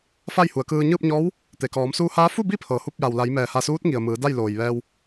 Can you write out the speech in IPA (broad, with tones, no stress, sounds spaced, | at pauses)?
f a˥˨ j h u˩˧ ə̯ k ɯː˧ ɲ ɯː˥˨ p̚ ɲ ɔː˧˥ w | t̪ e˩ k ɔː˩˧ m s uː˧ h aː˧˥ f u˥˨ b i˥˨ pʰ ɤː˩ h u˥˨ p̚ j a˩ w l a˩˧ j m ɛː˩ h a˧˩ s uː˧˥ t̚ ŋ i˩ ə̯ m ɯː˩˧ d a˥˨ j l oː˩ j ʋ ɛː˧ w